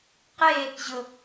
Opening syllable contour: falling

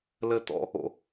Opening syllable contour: high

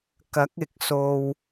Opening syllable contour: rising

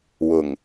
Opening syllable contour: low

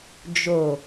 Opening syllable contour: low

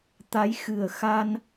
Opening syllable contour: rising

